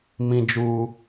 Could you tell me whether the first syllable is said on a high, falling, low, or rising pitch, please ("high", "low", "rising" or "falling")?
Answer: high